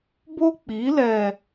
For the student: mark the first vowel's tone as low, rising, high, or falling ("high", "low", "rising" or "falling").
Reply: high